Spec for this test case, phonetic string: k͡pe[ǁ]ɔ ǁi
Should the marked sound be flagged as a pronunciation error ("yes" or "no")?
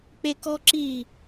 yes